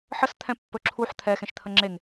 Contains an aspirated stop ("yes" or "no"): yes